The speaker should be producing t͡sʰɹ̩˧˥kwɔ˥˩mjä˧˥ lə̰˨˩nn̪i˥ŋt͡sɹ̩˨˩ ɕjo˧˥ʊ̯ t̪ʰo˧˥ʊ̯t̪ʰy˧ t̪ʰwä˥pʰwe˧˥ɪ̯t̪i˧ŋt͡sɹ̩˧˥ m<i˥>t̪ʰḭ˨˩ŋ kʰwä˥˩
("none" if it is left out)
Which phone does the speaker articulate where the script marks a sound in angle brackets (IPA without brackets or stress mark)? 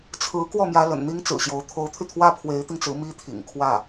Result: i˥